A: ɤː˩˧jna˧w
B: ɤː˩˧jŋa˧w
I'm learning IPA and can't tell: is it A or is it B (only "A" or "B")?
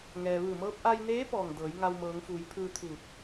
B